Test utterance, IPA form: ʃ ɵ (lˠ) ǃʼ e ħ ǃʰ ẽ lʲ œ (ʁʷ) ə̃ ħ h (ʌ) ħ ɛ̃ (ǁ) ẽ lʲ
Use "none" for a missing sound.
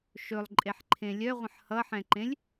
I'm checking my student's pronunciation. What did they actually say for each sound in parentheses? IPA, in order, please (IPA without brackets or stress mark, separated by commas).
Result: lˠ, ʁʷ, ʌ, ǃ